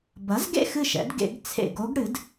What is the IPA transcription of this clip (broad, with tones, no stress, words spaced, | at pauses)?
bɐ˩˥zɡḛ˥˨ xɨ˥˨ʃɛ̰˩˥d ɡḛ˨˩˦ɡt͡sʰḛ˧˩ɡo˧˥ɡ ɽɨ˩˥d